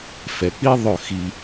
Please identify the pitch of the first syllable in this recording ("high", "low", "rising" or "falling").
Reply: low